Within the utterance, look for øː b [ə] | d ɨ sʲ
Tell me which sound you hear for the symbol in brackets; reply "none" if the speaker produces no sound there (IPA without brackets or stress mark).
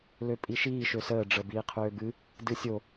ɨ